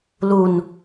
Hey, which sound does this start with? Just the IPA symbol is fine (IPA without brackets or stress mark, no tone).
l